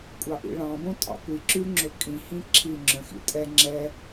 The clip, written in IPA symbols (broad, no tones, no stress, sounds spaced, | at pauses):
kʷʼ ɑ ʔ ḭ ɭ ɑ̃ b õ tʼ ɑ̰ kʷ i ǁ ʉ ŋ͡ǁ ɵ kʼ ĩ h ĩ ǁʰ i ŋ͡ǁ œ̃ x ḭ tʼ ɛ ŋ͡ǁ ɛ